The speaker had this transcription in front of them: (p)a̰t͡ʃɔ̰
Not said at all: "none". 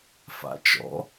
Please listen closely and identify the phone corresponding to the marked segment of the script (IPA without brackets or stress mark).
f